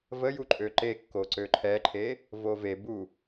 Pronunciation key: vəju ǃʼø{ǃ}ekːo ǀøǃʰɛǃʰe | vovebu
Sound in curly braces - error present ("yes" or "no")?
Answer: no